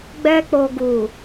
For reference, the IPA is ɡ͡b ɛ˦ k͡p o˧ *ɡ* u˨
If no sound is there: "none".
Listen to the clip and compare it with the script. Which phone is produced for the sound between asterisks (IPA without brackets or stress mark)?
ɡ